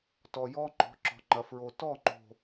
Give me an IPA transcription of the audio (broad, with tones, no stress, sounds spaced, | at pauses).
t ɔ˨ j ɔ˦ ŋ͡ǃ ɔ̤˨˦ ǁ ɔ̤˨ ŋ͡ǃ ɐ˨ f ɹ o˨ t ɔ˦˨ ŋ͡ǃ o̤˨